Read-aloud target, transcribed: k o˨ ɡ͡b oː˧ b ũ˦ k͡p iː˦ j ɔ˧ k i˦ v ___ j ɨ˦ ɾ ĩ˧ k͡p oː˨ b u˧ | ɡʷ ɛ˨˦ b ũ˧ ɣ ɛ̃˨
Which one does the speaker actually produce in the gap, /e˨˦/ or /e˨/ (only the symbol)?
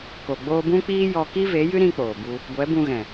e˨˦